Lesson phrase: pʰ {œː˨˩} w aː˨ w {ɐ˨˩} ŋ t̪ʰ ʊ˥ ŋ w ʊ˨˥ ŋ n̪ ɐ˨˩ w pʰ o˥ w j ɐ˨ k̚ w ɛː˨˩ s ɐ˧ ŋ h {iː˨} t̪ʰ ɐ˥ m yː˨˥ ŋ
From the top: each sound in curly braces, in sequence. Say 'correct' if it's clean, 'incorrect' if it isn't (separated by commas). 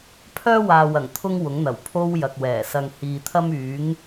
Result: incorrect, correct, correct